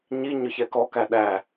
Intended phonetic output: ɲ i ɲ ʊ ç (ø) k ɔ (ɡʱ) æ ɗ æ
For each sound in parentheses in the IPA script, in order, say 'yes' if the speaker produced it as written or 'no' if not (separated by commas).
no, no